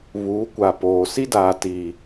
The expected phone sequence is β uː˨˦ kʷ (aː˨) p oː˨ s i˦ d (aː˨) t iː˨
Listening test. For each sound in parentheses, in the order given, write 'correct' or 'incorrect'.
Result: incorrect, correct

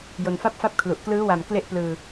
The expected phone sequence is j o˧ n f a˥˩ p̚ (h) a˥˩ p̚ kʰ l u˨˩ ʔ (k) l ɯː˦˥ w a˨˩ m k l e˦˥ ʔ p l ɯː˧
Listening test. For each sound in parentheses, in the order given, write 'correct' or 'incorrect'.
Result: incorrect, correct

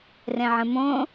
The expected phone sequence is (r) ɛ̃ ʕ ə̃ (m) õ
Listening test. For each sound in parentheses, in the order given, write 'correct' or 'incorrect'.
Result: correct, correct

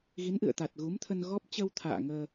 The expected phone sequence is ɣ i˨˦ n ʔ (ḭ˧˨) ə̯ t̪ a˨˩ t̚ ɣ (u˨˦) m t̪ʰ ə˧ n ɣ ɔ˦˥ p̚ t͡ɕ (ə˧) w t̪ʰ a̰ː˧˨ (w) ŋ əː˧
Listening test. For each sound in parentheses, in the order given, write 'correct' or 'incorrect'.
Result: incorrect, correct, correct, incorrect

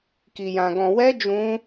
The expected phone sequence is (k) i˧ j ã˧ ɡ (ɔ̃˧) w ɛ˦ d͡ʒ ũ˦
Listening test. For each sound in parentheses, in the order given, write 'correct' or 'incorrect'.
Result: correct, correct

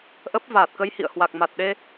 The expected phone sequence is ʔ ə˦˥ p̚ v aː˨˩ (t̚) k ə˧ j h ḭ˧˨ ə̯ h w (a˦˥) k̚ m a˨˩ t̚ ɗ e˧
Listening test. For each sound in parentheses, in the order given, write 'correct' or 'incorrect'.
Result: correct, incorrect

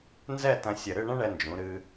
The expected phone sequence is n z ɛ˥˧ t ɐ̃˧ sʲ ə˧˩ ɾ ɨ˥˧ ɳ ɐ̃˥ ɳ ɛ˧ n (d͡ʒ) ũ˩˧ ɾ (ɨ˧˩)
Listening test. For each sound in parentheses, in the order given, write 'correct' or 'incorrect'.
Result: correct, incorrect

